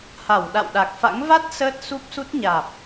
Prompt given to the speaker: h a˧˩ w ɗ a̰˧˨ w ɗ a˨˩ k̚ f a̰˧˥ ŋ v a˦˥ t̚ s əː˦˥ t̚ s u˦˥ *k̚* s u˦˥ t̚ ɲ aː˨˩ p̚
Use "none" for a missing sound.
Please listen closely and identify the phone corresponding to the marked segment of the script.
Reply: p̚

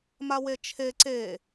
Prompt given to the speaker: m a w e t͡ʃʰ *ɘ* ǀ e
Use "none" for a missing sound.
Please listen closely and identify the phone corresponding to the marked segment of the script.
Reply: e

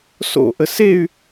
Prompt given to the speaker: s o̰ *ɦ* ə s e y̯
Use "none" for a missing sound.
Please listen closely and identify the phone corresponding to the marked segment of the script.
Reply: ʔ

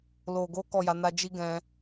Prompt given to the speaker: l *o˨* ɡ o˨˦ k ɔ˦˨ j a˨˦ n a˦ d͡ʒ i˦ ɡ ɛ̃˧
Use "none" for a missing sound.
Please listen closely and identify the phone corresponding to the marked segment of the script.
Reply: o˨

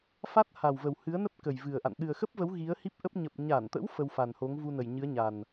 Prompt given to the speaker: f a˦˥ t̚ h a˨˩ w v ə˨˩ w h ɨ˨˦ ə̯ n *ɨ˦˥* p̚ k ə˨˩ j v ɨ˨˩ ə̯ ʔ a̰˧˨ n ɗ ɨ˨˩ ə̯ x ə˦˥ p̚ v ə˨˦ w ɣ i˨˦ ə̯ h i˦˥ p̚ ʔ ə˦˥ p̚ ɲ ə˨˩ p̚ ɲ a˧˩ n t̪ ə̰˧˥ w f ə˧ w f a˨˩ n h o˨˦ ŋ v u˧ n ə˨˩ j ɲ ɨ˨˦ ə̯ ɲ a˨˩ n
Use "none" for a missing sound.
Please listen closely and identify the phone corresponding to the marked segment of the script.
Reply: ə˦˥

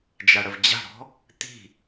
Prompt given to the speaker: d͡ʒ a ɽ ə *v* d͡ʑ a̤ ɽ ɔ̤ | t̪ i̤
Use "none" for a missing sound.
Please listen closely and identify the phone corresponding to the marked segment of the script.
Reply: v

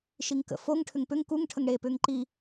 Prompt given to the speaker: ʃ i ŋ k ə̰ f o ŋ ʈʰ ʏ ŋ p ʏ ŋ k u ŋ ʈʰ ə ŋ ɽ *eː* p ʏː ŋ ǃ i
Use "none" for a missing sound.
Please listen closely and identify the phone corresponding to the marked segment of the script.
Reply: eː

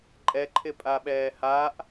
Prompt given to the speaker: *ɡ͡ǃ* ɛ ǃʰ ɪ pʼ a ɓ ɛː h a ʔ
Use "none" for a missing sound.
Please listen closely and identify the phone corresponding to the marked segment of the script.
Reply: ǃʼ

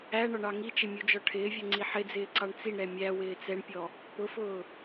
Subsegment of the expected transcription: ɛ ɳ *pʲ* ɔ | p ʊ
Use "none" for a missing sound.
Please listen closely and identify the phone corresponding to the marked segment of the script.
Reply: pʲ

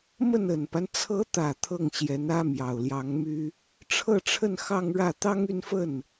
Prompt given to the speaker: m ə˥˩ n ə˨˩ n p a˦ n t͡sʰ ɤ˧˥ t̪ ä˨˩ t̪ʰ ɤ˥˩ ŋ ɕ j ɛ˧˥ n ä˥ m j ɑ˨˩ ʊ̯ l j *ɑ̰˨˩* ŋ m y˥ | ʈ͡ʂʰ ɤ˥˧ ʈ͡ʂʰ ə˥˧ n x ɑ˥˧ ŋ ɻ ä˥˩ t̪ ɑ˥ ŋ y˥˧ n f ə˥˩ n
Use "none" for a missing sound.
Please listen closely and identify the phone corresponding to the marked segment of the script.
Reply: ɑ˧˥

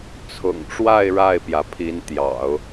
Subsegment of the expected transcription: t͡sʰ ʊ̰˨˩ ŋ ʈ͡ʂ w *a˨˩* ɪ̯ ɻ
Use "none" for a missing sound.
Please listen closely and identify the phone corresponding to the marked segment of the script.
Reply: a˥˧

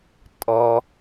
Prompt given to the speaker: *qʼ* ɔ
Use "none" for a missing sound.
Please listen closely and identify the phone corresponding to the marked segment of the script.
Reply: tʼ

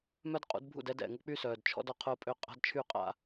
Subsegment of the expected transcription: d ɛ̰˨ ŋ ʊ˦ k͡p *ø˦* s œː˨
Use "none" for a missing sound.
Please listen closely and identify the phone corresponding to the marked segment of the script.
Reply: y˦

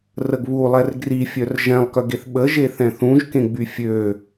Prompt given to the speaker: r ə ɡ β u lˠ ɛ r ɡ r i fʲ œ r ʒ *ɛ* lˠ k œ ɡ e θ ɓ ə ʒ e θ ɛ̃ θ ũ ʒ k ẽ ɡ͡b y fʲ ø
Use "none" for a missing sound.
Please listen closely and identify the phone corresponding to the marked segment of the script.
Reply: ɛ̃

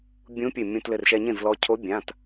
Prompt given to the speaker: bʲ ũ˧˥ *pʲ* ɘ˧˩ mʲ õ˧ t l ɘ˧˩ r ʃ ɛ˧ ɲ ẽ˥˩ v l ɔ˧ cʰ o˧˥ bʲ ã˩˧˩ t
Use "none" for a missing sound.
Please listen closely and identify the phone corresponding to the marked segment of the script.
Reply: pʲ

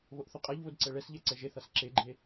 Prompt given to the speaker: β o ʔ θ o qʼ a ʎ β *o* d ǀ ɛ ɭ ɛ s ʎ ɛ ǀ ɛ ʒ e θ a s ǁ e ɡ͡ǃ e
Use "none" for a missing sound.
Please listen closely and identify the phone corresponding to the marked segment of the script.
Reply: o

